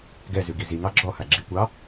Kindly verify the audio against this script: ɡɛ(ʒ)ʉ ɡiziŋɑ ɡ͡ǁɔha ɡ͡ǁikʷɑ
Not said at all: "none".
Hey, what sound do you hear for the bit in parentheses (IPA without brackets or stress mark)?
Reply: z